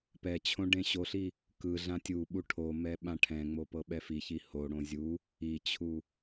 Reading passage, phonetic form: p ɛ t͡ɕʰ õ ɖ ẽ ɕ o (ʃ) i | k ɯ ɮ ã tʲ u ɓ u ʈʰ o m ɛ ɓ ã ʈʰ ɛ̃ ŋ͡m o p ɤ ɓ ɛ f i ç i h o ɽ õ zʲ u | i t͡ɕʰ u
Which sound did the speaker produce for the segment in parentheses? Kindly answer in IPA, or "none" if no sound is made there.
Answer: ɬ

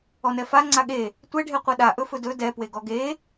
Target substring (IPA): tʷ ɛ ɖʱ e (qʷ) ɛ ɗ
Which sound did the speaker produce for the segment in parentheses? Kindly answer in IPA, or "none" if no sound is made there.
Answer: qʷ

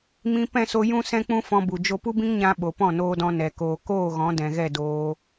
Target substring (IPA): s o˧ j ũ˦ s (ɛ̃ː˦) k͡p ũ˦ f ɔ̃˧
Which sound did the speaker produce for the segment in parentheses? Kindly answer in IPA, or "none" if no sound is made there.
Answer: ɛ̃˦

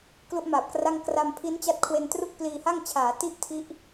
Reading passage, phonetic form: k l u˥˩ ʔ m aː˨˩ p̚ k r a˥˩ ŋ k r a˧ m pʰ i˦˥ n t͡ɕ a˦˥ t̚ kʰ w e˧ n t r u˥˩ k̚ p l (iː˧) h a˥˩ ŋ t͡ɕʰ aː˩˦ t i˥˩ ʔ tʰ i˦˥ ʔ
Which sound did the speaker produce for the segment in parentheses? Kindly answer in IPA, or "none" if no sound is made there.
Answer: iː˧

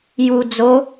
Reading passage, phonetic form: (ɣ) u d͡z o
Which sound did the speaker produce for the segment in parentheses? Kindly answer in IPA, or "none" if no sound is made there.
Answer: j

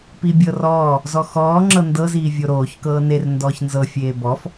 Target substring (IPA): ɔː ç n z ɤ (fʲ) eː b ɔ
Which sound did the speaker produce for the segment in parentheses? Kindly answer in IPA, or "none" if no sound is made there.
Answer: fʲ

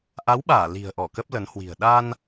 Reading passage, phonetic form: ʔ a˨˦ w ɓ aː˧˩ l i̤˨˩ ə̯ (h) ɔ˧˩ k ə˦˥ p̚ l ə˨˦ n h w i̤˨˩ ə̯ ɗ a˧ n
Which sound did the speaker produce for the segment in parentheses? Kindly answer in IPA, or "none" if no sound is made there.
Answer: ʔ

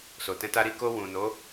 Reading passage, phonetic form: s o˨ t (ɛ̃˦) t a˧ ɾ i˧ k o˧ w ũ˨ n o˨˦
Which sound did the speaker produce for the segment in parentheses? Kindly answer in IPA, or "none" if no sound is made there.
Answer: ɛ̃˧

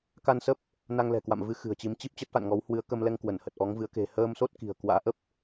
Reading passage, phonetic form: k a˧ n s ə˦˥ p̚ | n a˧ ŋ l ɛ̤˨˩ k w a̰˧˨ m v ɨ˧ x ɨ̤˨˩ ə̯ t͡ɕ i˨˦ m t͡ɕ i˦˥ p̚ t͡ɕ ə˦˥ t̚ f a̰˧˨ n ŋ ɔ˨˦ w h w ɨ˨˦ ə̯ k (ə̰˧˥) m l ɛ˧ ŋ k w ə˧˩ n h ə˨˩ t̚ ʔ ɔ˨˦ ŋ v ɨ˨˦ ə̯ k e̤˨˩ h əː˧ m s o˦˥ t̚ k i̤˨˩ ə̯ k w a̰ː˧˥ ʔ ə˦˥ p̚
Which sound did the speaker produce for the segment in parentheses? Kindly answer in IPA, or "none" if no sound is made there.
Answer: ə˧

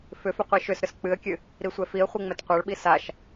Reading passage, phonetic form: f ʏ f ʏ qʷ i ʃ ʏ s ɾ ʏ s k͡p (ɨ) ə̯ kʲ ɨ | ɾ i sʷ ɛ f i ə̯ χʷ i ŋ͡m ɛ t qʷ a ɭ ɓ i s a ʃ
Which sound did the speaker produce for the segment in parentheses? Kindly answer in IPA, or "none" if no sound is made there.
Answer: ɨ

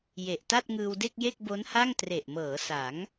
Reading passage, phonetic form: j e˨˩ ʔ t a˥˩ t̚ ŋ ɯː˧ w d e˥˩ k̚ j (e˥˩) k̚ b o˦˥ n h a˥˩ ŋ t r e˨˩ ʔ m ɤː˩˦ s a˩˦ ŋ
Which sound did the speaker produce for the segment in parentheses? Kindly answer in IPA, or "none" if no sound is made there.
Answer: e˥˩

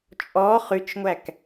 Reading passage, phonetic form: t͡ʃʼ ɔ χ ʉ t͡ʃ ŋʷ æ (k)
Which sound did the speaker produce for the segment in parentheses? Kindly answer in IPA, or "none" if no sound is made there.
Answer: k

